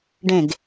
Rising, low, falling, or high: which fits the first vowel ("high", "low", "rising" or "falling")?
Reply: falling